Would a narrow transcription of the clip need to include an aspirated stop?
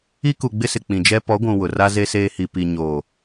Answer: no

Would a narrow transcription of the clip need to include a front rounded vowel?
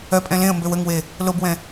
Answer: yes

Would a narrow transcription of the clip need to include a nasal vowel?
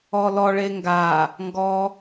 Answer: no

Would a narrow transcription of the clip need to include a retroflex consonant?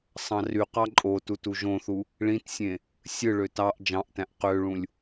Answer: yes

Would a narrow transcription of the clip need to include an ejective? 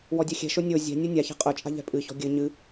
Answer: yes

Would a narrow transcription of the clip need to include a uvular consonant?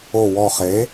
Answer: yes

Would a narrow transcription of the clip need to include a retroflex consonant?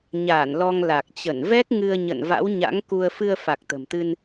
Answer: no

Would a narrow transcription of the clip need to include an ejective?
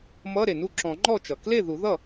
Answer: no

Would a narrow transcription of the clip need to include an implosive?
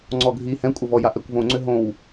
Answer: no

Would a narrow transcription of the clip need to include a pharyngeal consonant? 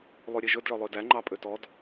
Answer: no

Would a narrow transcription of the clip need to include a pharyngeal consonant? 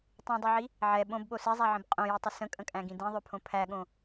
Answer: yes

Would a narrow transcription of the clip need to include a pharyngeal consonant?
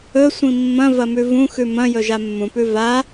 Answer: no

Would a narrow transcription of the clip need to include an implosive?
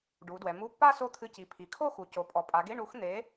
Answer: no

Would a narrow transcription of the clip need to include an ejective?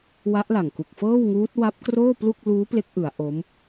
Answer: no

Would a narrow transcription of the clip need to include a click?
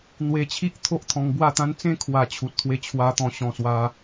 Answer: no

